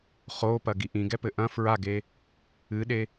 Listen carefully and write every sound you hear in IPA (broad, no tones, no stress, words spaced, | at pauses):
χopɐ ɡiʔĩ ɡɛpɘʔɐ̃ fɹaɡe | ɨɗe